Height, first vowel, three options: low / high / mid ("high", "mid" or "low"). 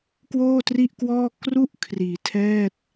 mid